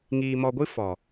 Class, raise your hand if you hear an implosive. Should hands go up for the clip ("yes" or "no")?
no